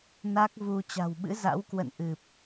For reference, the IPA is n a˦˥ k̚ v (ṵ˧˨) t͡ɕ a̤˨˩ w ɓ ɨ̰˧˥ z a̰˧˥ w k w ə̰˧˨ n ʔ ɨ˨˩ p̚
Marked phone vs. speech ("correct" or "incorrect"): incorrect